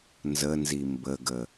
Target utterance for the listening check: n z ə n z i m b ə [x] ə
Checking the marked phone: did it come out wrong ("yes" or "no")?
yes